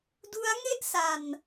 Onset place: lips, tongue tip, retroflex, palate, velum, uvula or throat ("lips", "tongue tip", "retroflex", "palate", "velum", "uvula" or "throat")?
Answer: tongue tip